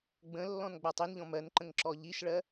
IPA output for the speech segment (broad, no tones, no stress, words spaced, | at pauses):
ɡ͡bə̃lːɔ̃n ɡ͡batˤinʎɔ̃ mɜnǃə̃ŋǁɔ ʎiʃɭɜ